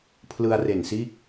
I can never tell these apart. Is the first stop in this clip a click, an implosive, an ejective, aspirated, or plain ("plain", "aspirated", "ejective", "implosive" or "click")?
aspirated